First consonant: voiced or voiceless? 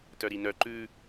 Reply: voiceless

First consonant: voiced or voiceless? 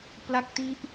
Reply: voiceless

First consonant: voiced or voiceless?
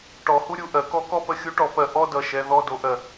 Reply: voiceless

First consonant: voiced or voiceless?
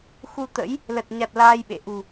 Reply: voiceless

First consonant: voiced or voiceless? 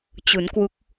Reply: voiceless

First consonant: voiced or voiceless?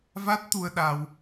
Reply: voiced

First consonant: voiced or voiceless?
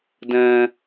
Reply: voiced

